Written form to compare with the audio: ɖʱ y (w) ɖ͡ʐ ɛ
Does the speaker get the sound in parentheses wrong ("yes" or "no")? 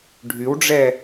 no